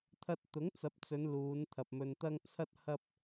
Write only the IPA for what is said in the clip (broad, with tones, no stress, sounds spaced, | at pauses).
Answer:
t̪ʰ ɐ˧ t̚ t̪ ʊ˨˥ ŋ t͡s ɐ˨˥ p̚ t͡s ɵ˨˧ n l uː˨˧ n t̪ʰ ɐ˨ p̚ m ɵ˧ n t̪ ɐ˥ ŋ t͡sʰ ɐ˥ t̚ h ɐ˥ p̚